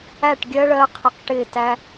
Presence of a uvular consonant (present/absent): present